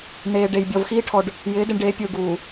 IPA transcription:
n̪ eː˨ ɖ e˨ j bʲ ɔ˨ v x iː˦ ʈʰ ɔ˨ ɖ | j ɪː˨˦ d ɪ˨ ɳ ɖ eː˨˦ pʲ uː˨ ɡ uː˨

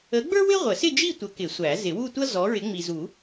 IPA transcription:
ə˨˥ ɡ͡b ə˞˥ w ɪ˥ ʁʷ ə˨˩˦ s ɪ˥˧ d͡ʒ i˥˧ tʷ ə˨˥ k ɪ˨˩˦ sʷ æ˨˩˦ z ɪ˨˩˦ w u˥˧ tʷ ʌ˥ z ɔ˨˥ ɹ ɪ˨˥ ŋ͡m i˨ z u˨˩˦

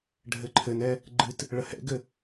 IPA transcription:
ɖʱ ɘ ǃʰ ɘ n ɛ | ɡ͡ǃ ɨ t | ɭ ə h ɛ̰ ɡ ɘ

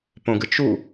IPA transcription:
p õ ɡ ɨ t͡ʃ u

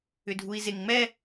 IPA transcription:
ʏ dʱ u i̯ z e ŋ ŋ͡m ɛ

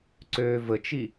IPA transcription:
ǀ øː v ə t͡ʃ i

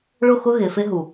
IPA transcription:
ɭ ʊ˦˨ x ʊ˦ ɣ e˨ f e˦ ɦ u˨

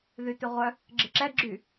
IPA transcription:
ð y t ʏ ʁʷ œ | ɡ͡ǁ ɪ ǁ ɛ ɡ͡ǁ y

